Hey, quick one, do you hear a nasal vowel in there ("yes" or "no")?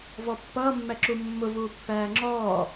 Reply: no